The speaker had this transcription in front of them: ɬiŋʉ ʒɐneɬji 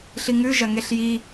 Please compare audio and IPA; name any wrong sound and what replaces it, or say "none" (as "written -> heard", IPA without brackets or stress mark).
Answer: n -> ŋ